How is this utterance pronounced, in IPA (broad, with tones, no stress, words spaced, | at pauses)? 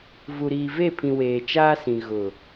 vu˨ɾiː˨ve˦˨pʰĩ˨ weː˨t͡ʃaː˦sĩ˨ ɣʊ˨